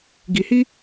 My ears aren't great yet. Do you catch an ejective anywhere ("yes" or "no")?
no